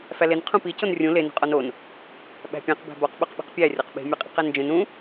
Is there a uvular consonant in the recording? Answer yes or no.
yes